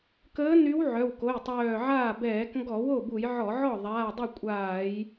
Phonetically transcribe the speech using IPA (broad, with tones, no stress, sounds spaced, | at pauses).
k əː˧˥ n y˧˥ w ʕ œ˩˧˩ w k o˩˧˩ j tˤ œː˧˩ ʕ aː˥˩ b ɛː˧˩˧ k ŋ ɡ ɔ˧˩˧ w o˥˩ b u˧˩˧ j ʕ ɔ˧˩˧ ʕ ɔ˥˩ ðˤ aː˩˧˩ dˤ œ˥˩ kʷʼ aː˧˩˧ j